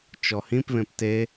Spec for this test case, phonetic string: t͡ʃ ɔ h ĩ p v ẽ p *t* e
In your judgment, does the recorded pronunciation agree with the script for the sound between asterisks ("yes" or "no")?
yes